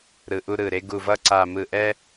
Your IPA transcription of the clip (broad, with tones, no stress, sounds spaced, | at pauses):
ɾ ɯ˨˩ ʔ u˧ ɾ ɯ˨˩ ɾ e˧ ɡ u˨˩ v ʌ˧ ǀ a˨˩ m ɯ˨˩ ʔ ɛ˧